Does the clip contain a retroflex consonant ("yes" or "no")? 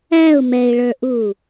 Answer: yes